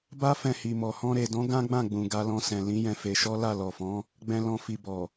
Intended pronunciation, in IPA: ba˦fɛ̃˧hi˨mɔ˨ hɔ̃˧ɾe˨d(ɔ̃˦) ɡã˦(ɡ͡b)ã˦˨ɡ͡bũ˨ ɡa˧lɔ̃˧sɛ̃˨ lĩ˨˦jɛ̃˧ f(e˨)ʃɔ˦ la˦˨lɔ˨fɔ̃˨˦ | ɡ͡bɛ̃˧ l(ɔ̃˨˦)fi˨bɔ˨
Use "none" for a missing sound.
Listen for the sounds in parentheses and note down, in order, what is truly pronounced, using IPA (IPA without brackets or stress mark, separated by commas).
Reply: ɔ̃˨˦, ɡ͡b, e˧, ɔ̃˧